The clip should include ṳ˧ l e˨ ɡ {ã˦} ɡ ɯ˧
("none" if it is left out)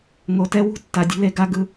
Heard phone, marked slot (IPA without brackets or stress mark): a˦